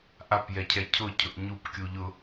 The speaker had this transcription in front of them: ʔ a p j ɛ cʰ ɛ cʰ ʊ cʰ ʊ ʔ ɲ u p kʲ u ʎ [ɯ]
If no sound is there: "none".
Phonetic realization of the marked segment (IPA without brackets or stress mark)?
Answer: ʊ